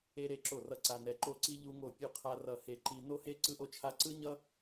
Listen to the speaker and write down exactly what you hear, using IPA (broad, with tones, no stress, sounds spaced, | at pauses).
e˥ ɾ e˥˧ ǁ o˥˧ r ʌ˥˧ ǀ a˥ n ɛ˥ ǃ o˥˧ ǀ i˥ ʎ u˥ ŋ o˥˧ pʲ u˥˧ qʰ a˥ r ʌ˥˧ h e˥˧ ǃ i˥ n o˥ h e˥ ǀ ɯ˥ ʔ o˥ t͡ʃʰ a˥ ǀ ɯ˥ ɲ ʌ˥